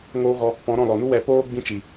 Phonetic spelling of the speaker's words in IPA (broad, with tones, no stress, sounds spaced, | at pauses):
ŋ oː˦ ɣ ɔ˧ | p ɔ̃˨˦ ɾ ɔ̃˦˨ l ɔ˨ n u˦ w ɛ˨ p oː˦ ɡ͡b ĩ˦ t͡ʃ i˨